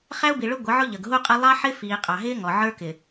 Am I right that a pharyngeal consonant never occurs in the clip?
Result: no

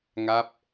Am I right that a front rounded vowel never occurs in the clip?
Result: yes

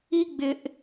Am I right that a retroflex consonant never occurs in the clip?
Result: yes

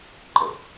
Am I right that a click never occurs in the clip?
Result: no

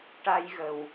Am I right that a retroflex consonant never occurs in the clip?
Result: no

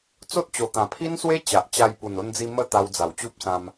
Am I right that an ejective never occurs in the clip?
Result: yes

